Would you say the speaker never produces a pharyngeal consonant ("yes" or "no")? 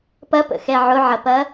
no